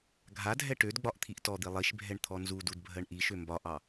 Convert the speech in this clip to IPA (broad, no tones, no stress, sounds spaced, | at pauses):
ɡʱ a dʱ ɛ ʈ ø d ɡ͡b ɒ ʔ t̪ʰ i ʔ t ɔ d̪ i lˠ i ʃ bʱ ɛ ɳ t̪ʰ ɔ n z u d u d bʱ ɜ ɳ ʔ i ʃ ø m b ɒ ʔ ɑ